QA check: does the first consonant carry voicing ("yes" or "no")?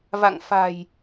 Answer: yes